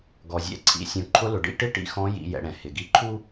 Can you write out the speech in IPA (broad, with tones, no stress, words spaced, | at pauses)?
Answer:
ɡɔ˩zʲɛ̰˧ ǀʰḭ˩˧ sʲũ˩˧ǃʰʊ˧˥lʊ˩ ɖḭ˧ʈɪ˥ ʈḭ˧xɔ̃˧˥jḭ˩˧ jɛ̰˩˧ɽɛ̃˩ hɪ˩ɡi˧ǃʰu˥